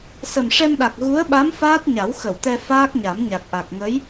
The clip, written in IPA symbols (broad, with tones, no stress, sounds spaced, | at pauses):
s ə˨˩ m ʂ ɛ˧ m ɗ a˨˩ k̚ ɣ u˧˥ ə̯ ɓ a˧˥ m f aː˦˥ t̚ ɲ a˨˩˦ w x ə˨˩˨ w t̪ ɛ˧ f aː˦˥ k̚ ɲ a˨˩˦ m ɲ a˨˩ k̚ ʔ a˨˩ k̚ ŋ ə˧˥ j